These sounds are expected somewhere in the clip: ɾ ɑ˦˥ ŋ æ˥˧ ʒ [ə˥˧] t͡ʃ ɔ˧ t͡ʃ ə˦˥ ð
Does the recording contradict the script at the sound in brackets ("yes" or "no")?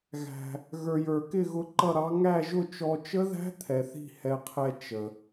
yes